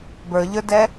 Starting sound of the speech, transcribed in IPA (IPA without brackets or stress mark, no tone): b